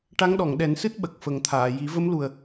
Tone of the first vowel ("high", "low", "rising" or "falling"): rising